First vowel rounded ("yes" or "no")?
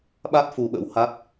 no